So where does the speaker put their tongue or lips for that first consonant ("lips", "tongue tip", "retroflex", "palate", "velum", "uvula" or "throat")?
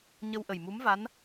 palate